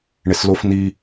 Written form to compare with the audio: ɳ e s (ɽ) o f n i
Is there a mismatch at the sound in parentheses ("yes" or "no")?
yes